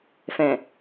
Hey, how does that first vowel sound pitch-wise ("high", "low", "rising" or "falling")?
low